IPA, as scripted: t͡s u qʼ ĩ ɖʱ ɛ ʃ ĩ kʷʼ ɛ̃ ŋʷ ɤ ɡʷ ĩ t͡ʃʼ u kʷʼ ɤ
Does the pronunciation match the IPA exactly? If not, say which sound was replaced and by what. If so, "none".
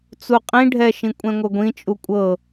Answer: none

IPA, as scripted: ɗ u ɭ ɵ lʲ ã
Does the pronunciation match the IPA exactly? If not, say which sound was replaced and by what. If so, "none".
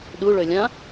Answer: none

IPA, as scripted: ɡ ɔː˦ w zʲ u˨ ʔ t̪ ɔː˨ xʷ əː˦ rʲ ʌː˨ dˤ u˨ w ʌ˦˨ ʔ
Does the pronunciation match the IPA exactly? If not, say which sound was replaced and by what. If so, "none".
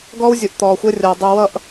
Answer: none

